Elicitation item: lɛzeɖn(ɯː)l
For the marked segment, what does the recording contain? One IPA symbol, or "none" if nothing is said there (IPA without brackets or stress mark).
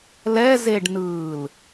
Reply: ɯː